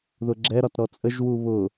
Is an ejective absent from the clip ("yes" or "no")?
no